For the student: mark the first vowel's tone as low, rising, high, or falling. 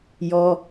high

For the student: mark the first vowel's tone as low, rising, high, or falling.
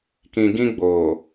low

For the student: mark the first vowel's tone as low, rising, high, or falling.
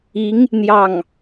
rising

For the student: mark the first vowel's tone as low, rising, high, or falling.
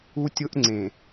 high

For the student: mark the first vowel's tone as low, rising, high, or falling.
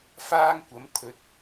high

